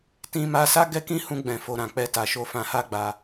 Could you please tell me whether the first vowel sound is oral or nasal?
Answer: nasal